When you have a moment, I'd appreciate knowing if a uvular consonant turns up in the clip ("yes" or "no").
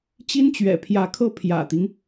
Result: no